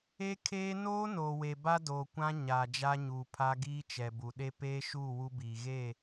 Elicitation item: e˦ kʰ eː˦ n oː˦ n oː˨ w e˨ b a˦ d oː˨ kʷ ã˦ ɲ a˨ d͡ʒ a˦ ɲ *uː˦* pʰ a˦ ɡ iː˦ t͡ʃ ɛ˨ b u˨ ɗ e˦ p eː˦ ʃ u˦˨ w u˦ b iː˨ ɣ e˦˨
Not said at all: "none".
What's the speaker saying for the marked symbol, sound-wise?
uː˨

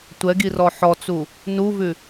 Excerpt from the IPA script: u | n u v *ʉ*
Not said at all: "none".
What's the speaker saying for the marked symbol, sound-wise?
ʉ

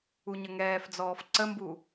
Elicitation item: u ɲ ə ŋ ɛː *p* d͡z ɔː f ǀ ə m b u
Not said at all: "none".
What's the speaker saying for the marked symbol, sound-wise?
f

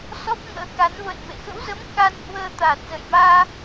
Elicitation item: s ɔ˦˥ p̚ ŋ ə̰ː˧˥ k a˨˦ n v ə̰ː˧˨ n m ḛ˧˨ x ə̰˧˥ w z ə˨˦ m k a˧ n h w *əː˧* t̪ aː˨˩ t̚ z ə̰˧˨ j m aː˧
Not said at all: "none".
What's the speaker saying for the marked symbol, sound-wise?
əː˧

